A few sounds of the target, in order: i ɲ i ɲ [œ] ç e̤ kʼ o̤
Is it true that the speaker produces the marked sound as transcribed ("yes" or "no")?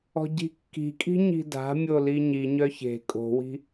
yes